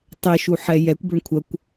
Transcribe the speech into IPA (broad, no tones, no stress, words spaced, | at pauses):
tˤɛʃuħɛ jɛkʷbøɳ kʷʰɐkʷ